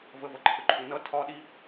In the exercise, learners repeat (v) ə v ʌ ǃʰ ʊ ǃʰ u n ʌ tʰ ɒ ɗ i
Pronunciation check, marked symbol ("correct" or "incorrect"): correct